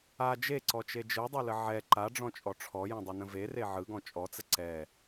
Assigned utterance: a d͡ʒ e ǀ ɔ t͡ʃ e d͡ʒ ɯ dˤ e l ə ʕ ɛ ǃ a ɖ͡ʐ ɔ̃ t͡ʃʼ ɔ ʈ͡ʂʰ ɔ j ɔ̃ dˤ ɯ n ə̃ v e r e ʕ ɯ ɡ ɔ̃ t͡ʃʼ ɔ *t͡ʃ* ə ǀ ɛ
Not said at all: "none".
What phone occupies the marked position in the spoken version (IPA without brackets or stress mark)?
t͡s